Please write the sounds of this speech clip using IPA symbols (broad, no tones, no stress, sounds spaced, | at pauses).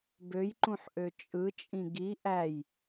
b ø j ǃ ũ ħ ʔ ø t͡ʃʼ ɯ t͡ʃʼ ĩ ɡ i ʔ æ j